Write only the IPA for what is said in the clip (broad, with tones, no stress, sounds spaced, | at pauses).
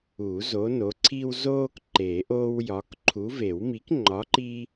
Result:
u˨˩˦ z o˨˦ n o˨˦ ǀʰ iː˦ w z oː˦ k ǃ e˨˩˦ ʔ oː˦ w j ɒ˨˦ k ǃʰ u˨˦ v e˨˩˦ w m i˨˦ k ŋ͡ǃ ɒ˨˦ ǃ iː˦